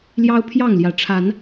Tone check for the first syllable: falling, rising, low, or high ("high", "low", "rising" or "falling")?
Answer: high